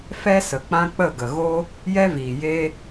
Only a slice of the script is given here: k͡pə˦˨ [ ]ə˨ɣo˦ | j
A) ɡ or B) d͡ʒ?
A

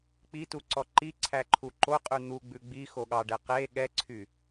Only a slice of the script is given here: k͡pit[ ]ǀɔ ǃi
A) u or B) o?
A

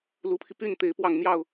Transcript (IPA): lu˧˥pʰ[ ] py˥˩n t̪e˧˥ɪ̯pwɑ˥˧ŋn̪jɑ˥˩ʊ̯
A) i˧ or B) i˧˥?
A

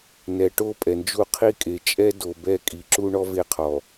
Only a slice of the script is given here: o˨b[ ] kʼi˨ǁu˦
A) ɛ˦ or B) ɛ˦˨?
B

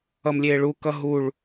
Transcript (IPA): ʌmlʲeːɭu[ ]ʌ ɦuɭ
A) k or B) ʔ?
A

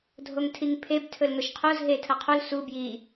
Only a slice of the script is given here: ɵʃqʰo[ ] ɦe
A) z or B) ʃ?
A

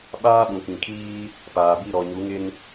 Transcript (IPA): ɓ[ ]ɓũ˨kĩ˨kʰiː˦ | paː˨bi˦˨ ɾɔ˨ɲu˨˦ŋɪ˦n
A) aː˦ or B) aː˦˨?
A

